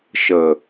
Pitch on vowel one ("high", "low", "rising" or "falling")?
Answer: low